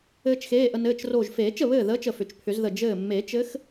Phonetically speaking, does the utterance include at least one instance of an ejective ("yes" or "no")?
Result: no